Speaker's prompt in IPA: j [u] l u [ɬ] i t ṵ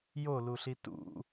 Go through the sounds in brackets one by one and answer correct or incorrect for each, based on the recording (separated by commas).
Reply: incorrect, correct